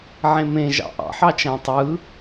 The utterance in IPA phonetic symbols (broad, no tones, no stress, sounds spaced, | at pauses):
ʕ ẽ m ẽ ʒ ɑ̰ ʔ ɑ̰ ħ ɑ t͡ʃ æ̃ tˤ ɯ